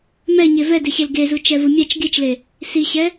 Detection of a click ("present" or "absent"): absent